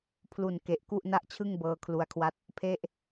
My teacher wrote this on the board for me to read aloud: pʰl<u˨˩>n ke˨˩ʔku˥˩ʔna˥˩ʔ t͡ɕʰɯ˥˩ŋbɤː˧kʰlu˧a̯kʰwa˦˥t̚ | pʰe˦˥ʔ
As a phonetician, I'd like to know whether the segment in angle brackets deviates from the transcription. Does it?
no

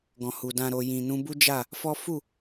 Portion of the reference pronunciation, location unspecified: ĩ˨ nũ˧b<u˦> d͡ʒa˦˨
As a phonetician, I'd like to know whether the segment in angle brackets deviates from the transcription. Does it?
no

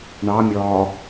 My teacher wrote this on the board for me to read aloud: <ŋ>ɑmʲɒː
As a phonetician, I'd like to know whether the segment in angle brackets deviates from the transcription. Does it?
yes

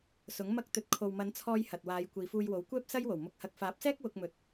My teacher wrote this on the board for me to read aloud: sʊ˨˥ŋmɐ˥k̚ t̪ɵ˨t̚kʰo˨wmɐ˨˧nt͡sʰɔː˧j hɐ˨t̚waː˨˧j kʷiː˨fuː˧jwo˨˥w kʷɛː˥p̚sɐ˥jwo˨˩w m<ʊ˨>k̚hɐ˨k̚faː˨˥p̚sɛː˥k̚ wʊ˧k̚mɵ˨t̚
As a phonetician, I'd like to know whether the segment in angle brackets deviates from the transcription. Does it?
no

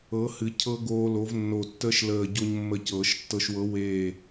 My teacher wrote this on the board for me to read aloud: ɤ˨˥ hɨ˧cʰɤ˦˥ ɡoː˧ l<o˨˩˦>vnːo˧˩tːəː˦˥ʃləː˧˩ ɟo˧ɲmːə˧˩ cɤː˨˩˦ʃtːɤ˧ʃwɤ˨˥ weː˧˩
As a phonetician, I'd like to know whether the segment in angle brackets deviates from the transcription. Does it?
yes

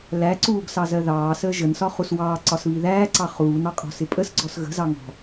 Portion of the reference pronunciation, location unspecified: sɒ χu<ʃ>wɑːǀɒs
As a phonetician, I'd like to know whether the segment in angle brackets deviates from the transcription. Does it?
yes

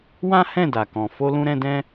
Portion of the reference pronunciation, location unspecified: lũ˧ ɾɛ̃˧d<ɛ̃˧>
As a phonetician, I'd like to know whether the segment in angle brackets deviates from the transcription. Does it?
yes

